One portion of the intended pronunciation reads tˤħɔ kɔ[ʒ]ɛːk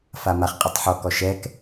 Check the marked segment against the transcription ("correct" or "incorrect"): incorrect